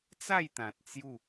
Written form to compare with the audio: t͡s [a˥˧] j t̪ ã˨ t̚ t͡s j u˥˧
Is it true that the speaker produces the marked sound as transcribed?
yes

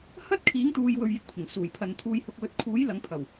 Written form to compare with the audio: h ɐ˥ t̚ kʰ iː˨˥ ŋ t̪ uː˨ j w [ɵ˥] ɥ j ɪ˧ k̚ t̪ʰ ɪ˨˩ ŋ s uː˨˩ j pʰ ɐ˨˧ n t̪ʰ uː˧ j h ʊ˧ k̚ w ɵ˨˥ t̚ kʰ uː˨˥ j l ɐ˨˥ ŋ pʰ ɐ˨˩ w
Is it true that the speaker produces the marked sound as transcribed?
no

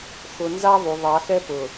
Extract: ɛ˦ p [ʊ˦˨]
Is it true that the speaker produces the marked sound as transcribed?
no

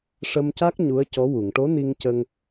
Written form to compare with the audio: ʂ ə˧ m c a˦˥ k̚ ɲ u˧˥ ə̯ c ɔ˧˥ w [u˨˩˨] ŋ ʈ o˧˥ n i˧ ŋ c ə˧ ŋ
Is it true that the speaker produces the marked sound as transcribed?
yes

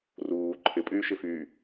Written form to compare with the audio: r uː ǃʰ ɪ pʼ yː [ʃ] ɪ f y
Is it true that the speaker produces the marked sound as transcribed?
yes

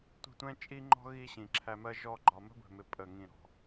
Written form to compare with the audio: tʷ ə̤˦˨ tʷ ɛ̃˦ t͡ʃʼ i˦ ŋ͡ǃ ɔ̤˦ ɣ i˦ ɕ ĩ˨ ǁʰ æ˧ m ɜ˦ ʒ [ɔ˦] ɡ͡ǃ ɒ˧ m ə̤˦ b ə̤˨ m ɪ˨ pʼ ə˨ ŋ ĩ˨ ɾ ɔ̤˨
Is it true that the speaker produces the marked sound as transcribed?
yes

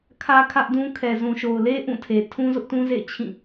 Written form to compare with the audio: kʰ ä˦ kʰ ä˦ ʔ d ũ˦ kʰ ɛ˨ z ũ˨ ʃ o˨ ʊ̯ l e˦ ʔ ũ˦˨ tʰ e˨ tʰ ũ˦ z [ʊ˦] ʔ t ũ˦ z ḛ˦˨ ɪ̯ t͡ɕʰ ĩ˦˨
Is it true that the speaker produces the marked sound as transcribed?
yes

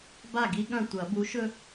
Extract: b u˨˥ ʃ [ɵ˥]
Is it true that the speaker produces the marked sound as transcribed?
yes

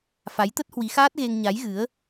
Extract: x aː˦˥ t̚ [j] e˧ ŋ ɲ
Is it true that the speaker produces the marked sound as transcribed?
no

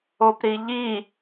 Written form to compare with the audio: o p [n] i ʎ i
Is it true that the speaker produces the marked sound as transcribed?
no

